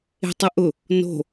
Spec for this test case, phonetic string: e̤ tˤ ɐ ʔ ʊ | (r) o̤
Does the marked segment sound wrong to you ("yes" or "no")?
yes